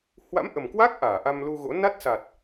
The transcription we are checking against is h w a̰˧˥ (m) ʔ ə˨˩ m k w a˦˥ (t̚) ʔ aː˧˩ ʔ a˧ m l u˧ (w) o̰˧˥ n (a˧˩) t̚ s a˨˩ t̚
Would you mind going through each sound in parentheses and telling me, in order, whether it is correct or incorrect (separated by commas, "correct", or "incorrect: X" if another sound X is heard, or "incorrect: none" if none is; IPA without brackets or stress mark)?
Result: correct, incorrect: k̚, incorrect: ɣ, incorrect: a˦˥